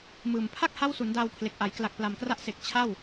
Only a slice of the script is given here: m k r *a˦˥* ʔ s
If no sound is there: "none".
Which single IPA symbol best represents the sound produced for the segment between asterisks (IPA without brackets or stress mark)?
a˦˥